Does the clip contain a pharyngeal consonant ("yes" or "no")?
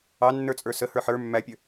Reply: yes